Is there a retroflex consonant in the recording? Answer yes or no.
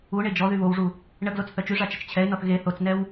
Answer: yes